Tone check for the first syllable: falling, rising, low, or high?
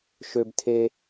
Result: high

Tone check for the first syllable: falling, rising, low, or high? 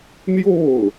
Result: falling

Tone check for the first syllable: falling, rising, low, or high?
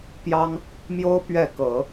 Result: high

